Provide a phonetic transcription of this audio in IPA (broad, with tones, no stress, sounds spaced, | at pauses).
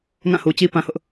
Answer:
ŋ ã˦˨ h u˨ t͡ɕ i˦ p ã˦ h ʊ˦ ʔ